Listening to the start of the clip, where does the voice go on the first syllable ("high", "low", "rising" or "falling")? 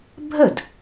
falling